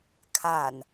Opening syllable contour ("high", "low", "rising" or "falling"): low